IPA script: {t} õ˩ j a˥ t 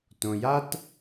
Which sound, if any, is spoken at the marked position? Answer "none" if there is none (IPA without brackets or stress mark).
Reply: t